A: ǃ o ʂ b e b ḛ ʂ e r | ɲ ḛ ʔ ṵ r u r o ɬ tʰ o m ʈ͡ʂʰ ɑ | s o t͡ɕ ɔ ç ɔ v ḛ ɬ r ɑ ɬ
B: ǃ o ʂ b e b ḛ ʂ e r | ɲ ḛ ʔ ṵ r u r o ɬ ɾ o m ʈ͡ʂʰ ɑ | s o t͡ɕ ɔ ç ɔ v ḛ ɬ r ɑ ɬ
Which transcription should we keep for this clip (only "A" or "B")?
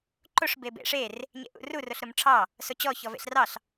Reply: B